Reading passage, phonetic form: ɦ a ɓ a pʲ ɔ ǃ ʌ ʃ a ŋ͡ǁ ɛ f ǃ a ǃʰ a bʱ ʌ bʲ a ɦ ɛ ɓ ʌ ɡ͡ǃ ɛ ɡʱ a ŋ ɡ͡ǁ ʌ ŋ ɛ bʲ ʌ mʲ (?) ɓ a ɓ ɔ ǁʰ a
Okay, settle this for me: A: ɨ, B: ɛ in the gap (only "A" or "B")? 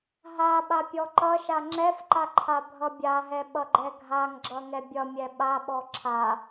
B